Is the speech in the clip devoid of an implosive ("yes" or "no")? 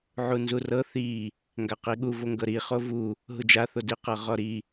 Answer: no